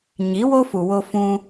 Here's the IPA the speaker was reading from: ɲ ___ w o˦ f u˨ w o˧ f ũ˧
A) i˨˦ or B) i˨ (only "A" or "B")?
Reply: A